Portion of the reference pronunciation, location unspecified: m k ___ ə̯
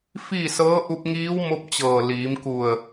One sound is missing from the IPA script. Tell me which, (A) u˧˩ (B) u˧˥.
A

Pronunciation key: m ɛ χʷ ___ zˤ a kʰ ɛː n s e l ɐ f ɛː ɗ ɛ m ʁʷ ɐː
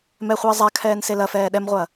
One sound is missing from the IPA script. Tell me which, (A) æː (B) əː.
B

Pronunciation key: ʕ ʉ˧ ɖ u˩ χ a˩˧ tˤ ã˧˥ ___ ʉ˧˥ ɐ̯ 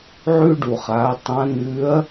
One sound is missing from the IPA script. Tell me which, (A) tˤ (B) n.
B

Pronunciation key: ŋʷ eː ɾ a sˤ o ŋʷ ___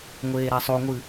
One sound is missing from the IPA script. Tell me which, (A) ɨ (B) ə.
A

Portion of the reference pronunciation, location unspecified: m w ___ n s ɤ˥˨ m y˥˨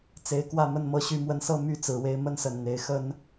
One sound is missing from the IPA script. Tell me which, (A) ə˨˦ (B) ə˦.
B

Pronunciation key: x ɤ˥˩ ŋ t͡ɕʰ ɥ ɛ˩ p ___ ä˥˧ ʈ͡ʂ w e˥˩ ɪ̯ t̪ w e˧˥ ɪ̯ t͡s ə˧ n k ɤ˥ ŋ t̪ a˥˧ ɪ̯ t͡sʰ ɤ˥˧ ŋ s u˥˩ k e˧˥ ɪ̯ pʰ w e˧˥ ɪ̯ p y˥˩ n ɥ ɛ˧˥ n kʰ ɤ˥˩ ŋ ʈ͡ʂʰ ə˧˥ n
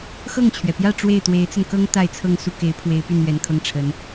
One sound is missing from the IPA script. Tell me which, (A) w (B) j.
B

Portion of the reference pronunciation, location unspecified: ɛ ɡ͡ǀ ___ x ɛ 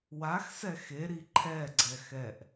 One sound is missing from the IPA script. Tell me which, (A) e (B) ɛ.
B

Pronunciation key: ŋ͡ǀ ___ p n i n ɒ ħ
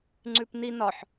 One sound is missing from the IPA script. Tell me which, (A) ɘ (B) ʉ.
B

